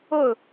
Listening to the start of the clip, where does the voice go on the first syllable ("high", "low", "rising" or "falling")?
falling